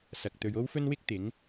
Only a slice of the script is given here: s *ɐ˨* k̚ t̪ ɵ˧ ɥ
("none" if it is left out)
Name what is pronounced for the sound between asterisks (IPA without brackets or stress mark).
ɐ˨